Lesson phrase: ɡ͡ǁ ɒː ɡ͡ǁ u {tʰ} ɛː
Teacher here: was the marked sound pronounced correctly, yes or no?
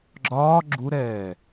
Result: no